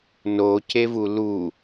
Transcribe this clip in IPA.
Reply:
n o c e v u l u

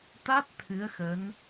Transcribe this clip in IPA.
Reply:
t̪ a˦˥ t̚ t̪ʰ ɨ˨˦ ə̯ x ə˨˦ n

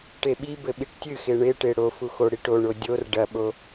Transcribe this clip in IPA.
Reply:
ʈ e ɓ i b ɘ ɓ i ʈ tʲ ɨ x e ɳ e ʈ e ɽ o f u x o ɽ i ʈ o ɳ o dʲ o r ɖ ɐ ɓ o

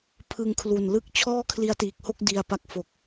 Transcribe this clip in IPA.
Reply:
pʰ ɯ˧ ŋ kʰ l u˨˩ n l ɯ˦˥ k̚ t͡ɕʰ ɔː˥˩ kʰ l i˦˥ a̯ t iː˨˩ k̚ h o˥˩ k̚ d i˧ a̯ p a˦˥ k̚ f o˨˩ k̚

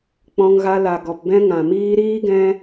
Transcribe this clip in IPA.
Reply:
k͡p ɔ̃˧ ŋ ɣ a˧ l a˨ ɡ ɔ˨ p b ɛ̃˧ ŋ ã˨ m iː˧ ɾ iː˦ ɡ ɛ̃˦

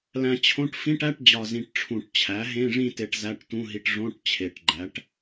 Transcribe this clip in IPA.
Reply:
l æ̃˧ t͡ɕʰ õ˧˥˧ ʈ f ĩ˧˥˧ ʈ æ˧˥˧ ʈ d͡ʑ ɒ˨˩ z ĩ˨˩ ʈ ʈ͡ʂʰ ũ˨˩ ʈ t͡ɕʰ æ˩˥ ɦ ẽ˧˥˧ ʐ ĩ˥˨ t e˧ ʈ z æ˧˥˧ ʈ t ũ˧˥˧ ɦ i˧ ʈ ʐ õ˧˥˧ ʈ t͡ɕʰ e˨˩ ʈ ɡ͡ǃ æ˩˥ ʈ

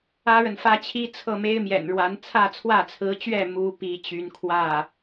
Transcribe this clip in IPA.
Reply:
ä˥ ɻ ə˨ n f ä˥ t͡ɕʰ i˥ t͡sʰ ɤ˥˩ m e˥ ɪ̯ m j ɛ̰˨˩ n ɻ w a˧˥ n t͡sʰ ä˥˧ t͡sʰ w ä˥˩ t͡sʰ ɹ̩˧˥ t͡ɕ ɥ ɛ˥˩ m u˧˥ p i˧˥ t͡ɕ y˧˥ n kʰ w ä˥˩

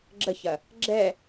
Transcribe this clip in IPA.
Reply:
ɡ͡ǁ ə ç ɐ | ɡ͡ǁ ɛ

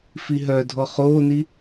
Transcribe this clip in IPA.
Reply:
f i ɦ œ dʱ ɔ χ oː n i

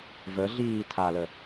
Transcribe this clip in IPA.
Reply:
v ə ɮ iː tʰ a l ə

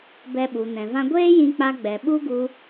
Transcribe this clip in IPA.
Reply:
b ɛ˧ ɓ u˨ n ɛ̃˨ v ã˧ ɡʷ eː˦ j ĩ˧ k͡p a˧ ɡ͡b ɛ˨ ɓ u˦ ɡ u˧

